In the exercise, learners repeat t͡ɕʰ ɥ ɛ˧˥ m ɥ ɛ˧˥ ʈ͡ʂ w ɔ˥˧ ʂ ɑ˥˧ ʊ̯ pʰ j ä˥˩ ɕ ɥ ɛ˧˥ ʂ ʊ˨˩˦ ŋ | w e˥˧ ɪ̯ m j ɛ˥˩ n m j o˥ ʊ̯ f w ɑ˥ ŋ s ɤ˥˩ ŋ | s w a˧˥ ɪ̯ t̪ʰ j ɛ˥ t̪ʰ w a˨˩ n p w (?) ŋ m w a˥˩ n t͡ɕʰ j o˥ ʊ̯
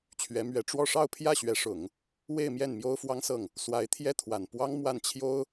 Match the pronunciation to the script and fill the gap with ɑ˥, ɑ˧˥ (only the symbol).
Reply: ɑ˥